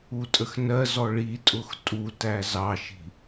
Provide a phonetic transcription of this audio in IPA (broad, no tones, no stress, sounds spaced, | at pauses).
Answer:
u tʼ ə x n ɜ z ɔ ɭ i tʼ ʊ x tʼ u t æ z ɑ ʃ i̤